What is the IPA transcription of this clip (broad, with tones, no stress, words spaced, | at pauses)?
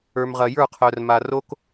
ə˞˨mʁɐ˨ jə˞˦˨qʰœ˨rma˨ ro˦k